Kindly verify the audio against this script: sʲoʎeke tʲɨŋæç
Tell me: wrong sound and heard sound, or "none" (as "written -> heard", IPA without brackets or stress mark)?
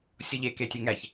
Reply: ɨ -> e